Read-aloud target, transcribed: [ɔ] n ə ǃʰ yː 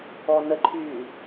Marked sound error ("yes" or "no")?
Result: no